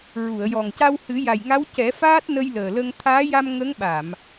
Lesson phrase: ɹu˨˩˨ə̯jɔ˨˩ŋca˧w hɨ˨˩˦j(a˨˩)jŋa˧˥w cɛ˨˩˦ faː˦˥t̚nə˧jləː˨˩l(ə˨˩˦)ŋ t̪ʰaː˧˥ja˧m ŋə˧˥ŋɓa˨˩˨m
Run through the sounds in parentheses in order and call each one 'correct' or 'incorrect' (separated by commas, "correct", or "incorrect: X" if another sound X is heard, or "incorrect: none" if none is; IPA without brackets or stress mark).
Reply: correct, incorrect: ə˧